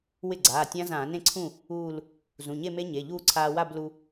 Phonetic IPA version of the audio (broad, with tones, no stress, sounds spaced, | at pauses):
w ɪ˥˩ ɡ͡ǀ aː˩˧˩ tʲ ã˦˥ z ãː˧˩˧ n ẽ˥˩ ǀʰ ũ˥˩ | uː˥˧ l | z ũ˩˧˩ ɲ e˥˧ m e˦˥ ɲ e˩˧˩ ʎ uː˥˧ ǀʰ aː˧ w a˥˧ b l u˧